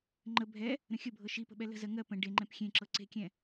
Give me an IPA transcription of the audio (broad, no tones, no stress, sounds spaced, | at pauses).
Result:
ŋ͡ǃ ə bʱ ɛ | ɾ ə̃ xʲ ə bʱ ɤ ʃ i p ə̤ ɓ ɛ l ə̤ z ɜ ŋ ɜ p ə̃ ɖ e ŋ͡ǃ ɛ̃ p xʲ ẽ ǁ ɤ ǀ e̤ kʲ ɛ̃